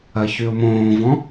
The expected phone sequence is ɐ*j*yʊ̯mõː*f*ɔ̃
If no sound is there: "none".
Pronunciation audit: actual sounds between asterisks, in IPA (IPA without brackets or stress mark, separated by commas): ç, v